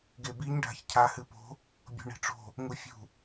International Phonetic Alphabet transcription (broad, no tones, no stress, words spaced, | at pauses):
ɡebiɲ ɖʱa̤çcʰa hɨpo̤ | bʲo̤ɳi̤ʈ͡ʂo̤ | ŋufʲṳ